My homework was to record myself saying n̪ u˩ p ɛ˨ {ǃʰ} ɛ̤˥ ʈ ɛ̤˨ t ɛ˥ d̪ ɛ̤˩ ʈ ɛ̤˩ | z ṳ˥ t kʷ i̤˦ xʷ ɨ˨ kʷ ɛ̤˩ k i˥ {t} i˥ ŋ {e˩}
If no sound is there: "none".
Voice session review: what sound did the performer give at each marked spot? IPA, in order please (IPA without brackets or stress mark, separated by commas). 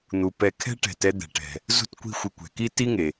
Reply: kʰ, t, e˩